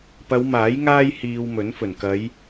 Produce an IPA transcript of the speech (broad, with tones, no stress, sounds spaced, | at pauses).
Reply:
p ɐ˨˧ w m aː˨˥ j ŋ aː˥ j h iː˧ w m ɵ˨˥ n f ɵ˨˩ n k ɐ˨˧ j